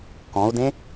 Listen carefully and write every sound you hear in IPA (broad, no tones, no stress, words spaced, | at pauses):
kɔ̃u̯dẽ